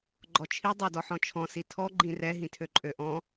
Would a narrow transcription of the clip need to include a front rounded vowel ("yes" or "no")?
yes